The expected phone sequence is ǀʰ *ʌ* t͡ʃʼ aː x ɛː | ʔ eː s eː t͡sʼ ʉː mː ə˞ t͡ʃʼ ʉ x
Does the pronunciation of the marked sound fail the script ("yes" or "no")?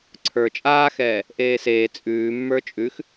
yes